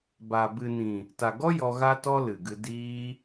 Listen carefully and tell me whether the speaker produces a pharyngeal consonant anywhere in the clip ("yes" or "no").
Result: no